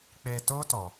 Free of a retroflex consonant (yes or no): yes